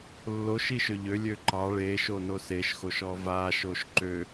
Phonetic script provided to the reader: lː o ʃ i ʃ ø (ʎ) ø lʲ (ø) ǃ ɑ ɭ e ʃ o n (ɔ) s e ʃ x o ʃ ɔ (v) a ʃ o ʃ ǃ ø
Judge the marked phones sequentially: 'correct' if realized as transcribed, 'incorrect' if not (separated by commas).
correct, correct, incorrect, correct